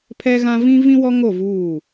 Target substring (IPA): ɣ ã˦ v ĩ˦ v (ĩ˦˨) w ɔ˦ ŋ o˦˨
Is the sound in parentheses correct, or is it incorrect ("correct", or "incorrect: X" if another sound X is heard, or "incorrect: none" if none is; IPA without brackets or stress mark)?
incorrect: ĩ˦